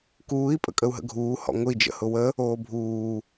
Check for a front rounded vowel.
absent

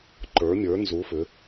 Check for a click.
present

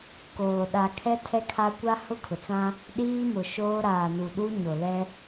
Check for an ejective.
absent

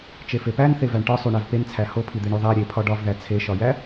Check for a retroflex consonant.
present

